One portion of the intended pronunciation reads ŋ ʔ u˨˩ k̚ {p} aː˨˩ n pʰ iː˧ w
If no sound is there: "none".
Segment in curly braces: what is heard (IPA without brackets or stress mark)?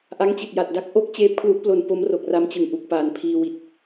p